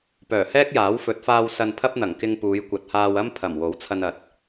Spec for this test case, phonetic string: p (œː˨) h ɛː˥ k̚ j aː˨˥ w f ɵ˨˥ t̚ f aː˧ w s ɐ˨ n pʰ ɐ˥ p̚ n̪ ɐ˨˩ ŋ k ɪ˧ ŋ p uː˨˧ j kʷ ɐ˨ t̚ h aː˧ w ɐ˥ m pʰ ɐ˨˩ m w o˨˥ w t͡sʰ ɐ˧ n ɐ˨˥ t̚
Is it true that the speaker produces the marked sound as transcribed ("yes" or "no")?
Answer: no